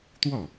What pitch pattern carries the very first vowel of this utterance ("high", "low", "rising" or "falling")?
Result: falling